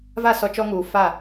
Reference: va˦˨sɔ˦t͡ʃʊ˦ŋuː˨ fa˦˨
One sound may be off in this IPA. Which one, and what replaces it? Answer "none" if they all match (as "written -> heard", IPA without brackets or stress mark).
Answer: ʊ˦ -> ɔ˦